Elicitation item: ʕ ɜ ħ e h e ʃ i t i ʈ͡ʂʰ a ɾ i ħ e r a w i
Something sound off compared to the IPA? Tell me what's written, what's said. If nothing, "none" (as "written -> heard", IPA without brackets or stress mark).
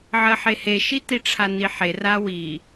ɾ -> n